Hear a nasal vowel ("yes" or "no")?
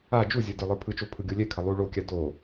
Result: no